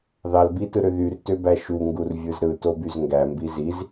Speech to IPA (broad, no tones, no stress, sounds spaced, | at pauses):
ð ɑ l b i t ɯ ɾ ø ð y r t ø b æ ʃ u ŋ ɡ u r vʲ ɯ z ɾ ɯ t o b y z ŋ ɡ æ m b i z i z